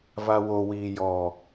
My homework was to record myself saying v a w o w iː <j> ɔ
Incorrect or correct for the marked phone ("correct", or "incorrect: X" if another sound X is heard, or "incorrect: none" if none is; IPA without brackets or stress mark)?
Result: correct